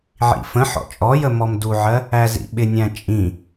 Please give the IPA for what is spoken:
ʕ ḭ f ə̃ ħ ɔ̰ t͡ʃʼ ɔ j ə m ɔ m d u ʕ ɜ | æ z ḭ ɓ ɪ nʲ æ̃ t͡ʃʼ ĩ

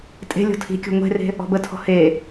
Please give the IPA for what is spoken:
tʼ e̤ lʲ ɔ̤ tʰ i̤ kʲ o̤ ŋʷ e̤ r e̤ | ɔ̤ b ə tʰ ɔ̤ h e

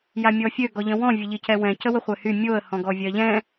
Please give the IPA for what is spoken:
j a mʲ ɔ fʲ ø ɡ ɔ ʎ ə̃ w ɔ̃ vʲ ə ʎ i c ɛ w ɛ̃ c ə w ə χʷ ɛ h y mʲ o ə̯ h ɔ̃ ɡ ɔ vʲ ɜ ʎ ɛ̃

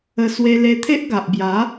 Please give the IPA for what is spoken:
ə˧ s w e˧ l e˧ t̪ʰ e˦ ʔ ɡ a˨ ʔ b j a˨˦

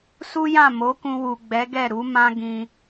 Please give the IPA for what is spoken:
s u˦ j ã˦˨ m o˨˦ k ũ˧ w u˨ ɡ͡b ɛ˨˦ ɡ ɛ˦˨ ɾ u˨˦ m ã˦ ɡ ĩ˧

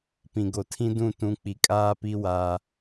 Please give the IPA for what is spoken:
p ĩ˨ ɡ o˨ tʰ ĩ˦ d ũ˦˨ t ũ˦ k͡p i˨ kʼ aː˦ p i˦ w aː˦

